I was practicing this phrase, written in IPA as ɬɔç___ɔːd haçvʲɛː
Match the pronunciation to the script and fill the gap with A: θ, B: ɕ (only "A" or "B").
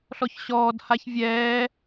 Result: B